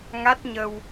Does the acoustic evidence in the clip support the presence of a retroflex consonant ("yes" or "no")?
no